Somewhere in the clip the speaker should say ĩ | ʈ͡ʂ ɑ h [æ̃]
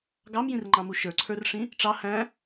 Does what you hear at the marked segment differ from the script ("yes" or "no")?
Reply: no